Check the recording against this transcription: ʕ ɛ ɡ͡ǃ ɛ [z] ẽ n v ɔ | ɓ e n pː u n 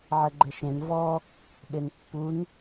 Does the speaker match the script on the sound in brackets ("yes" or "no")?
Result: no